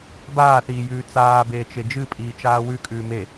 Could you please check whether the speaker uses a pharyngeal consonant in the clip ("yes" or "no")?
no